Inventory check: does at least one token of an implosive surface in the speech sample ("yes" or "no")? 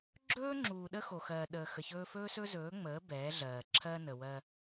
yes